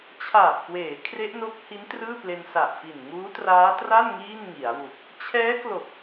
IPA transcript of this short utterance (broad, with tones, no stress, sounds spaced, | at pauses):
t͡ɕʰ aː˨˩ p̚ k w eː˩˦ kʰ r e˦˥ ʔ n o˦˥ k̚ h i˦˥ n t r ɯː˥˩ p l e˧ n s a˨˩ ʔ f i˨˩ n ŋ uː˦˥ t r aː˦˥ t r a˥˩ n ŋ iː˥˩ n ŋ i˩˦ a̯ w u˨˩ k̚ | t͡ɕʰ ɛː˦˥ k l o˨˩ k̚